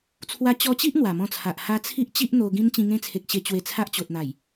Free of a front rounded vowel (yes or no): yes